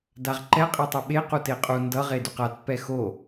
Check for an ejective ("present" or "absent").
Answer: present